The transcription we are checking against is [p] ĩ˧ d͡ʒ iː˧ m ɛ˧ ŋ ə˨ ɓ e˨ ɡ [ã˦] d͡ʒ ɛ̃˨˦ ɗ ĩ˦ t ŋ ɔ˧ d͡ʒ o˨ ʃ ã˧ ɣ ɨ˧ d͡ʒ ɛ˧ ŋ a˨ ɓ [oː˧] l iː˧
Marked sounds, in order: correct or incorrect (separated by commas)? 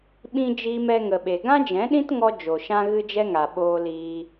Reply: incorrect, correct, correct